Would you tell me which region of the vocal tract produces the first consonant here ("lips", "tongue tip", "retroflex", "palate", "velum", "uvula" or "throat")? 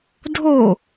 tongue tip